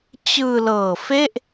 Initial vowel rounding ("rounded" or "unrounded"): unrounded